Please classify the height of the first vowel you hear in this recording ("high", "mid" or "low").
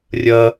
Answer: low